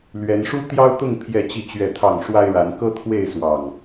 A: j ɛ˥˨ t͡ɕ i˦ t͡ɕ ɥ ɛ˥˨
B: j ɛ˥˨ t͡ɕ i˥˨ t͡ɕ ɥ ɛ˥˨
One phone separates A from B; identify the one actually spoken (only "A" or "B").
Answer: B